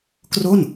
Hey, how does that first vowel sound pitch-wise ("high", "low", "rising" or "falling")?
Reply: falling